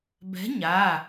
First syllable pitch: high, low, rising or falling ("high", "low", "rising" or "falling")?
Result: rising